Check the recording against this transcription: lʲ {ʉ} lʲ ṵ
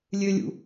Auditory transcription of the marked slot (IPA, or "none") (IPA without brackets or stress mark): ø